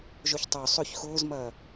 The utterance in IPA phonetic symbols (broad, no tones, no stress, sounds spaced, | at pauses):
ʒ ʊ ç tˤ œ sˤ ʏ ç x ʊː z m ɐː